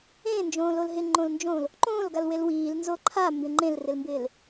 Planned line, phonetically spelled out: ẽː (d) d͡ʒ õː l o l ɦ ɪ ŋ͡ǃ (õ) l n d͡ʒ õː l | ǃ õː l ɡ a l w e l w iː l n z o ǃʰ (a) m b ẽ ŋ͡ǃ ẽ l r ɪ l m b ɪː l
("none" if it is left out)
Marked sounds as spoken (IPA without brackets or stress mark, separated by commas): n, õ, a